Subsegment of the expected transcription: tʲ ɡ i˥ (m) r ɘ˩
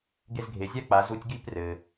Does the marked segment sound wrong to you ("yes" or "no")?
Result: yes